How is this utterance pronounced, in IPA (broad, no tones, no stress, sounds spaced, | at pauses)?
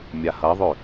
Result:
mʲ a h ɐ ðˤ ø